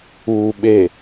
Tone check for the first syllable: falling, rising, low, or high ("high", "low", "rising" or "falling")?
low